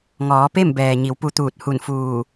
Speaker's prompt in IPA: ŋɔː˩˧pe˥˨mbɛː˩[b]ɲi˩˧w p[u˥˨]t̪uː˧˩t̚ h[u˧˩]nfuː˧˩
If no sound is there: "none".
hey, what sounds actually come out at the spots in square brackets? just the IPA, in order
none, u˧, u˧˩

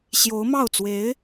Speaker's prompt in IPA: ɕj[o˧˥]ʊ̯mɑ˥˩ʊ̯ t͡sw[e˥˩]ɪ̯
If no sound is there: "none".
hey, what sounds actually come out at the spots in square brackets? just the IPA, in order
o˧˥, e˧˥

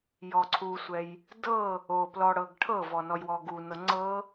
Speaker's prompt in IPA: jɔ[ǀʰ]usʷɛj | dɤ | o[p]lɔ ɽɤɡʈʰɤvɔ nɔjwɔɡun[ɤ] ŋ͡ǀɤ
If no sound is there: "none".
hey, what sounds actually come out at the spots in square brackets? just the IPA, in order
ǀʰ, p, ɤ

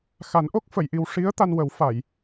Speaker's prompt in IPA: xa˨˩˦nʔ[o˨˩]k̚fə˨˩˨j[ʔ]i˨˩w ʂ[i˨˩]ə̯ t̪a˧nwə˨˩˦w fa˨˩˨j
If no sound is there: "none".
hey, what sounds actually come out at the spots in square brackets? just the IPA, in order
o˦˥, ʔ, i˧˥

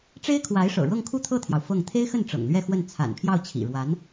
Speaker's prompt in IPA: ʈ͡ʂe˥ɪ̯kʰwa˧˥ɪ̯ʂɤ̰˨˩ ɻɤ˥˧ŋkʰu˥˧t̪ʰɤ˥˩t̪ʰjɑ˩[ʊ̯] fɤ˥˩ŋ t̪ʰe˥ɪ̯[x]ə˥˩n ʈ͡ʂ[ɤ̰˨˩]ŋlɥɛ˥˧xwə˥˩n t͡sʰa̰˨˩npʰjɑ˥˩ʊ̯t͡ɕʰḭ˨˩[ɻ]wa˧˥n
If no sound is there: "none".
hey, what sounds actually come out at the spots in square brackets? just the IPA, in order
ʊ̯, x, ɤ̰˨˩, ɻ

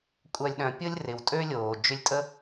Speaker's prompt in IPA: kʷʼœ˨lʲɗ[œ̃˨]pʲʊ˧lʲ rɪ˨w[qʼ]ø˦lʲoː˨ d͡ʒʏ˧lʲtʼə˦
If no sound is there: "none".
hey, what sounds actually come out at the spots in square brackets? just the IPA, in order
œ̃˨, tʼ

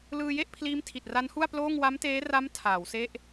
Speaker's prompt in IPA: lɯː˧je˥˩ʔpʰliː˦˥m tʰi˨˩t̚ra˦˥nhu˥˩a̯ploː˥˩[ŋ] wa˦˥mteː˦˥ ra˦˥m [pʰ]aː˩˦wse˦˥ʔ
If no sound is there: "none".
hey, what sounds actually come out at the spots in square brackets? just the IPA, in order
ŋ, tʰ

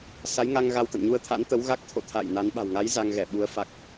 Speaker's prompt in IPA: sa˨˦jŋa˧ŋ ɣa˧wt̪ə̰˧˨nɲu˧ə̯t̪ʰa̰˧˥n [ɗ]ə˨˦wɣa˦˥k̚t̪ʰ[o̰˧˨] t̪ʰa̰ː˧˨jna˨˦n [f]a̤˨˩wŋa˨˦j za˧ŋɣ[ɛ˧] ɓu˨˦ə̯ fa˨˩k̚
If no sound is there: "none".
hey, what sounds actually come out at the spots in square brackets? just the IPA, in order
t̪, o̰˧˨, ɓ, ɛ˧˩

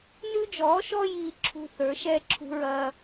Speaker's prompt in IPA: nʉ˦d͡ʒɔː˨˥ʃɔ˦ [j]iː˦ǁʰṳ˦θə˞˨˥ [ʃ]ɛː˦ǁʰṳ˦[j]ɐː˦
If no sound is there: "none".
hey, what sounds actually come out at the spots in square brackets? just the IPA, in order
j, ʃ, ɹ

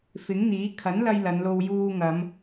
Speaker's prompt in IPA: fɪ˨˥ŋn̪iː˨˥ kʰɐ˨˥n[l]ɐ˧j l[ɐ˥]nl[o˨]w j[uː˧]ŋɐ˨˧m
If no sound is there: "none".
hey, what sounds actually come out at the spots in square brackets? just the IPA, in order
l, ɐ˨˧, o˧, uː˧

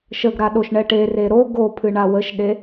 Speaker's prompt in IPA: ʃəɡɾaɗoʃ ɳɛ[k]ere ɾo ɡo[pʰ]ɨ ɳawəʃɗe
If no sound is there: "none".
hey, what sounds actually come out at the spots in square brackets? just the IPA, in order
ʈ, pʰ

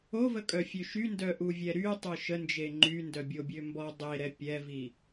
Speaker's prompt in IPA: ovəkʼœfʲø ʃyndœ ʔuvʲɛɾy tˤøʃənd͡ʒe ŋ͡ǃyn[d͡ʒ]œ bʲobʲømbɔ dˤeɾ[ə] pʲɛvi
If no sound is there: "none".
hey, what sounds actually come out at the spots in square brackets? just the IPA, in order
d, ɛ

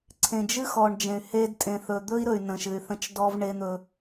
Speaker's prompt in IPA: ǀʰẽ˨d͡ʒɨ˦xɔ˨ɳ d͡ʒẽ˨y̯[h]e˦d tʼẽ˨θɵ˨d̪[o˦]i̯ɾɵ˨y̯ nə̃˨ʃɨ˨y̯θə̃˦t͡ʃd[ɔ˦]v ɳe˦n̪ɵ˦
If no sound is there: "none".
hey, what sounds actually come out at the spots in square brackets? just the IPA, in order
h, ɵ˦, ɔ˦

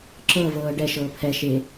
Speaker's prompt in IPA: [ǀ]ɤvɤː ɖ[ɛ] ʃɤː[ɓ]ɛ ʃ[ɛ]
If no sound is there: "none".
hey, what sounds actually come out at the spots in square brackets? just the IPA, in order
ǁ, ɛ, pʰ, e

